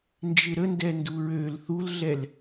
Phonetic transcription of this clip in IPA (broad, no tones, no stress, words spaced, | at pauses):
nd͡ʒɪɾəndɛ nduɹøl θulɮɛl